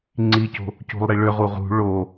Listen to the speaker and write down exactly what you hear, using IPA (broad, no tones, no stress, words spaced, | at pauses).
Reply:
ŋ͡ǀico̤ | cṳlˠɾiɭø ʁuʁṳ ɭo